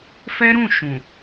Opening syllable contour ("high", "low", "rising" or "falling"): high